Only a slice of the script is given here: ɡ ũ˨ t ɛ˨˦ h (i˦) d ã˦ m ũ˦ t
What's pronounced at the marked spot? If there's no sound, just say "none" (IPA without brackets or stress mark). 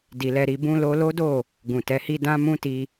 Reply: i˦